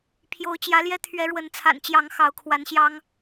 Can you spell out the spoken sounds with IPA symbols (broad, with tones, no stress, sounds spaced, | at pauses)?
pʰ j o˨˦ ʊ̯ t͡ɕ j ä˨˦ l j ɛ˦ t̪ʰ ɥ ɛ˨˦ ɻ w ə˨˦ n t͡sʰ a̰˨˩ n t͡ɕ j ɑ˨˦ ŋ x ɑ˨˦ ʊ̯ kʰ w a˨˦ n ɕ j ɑ˦ ŋ